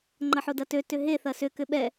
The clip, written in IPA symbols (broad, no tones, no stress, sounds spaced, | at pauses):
ŋ͡ǃ ɐ ħ o d ɐ t ø t ʏ ɦ e θ ɐ s ʏ k ʏ ɓ ɛ